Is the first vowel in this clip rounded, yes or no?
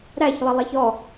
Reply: no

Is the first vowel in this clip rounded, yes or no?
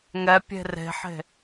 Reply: no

